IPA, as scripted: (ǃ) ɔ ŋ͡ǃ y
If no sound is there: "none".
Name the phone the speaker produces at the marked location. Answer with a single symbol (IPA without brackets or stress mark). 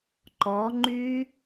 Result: ǃ